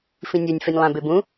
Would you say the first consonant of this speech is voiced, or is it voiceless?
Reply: voiceless